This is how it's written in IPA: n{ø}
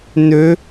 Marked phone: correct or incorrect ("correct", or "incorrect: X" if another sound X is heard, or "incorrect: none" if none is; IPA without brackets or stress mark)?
correct